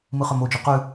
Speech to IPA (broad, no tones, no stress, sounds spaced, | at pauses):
m ɯ χ œ m o d͡ʒ ʉ q ʉ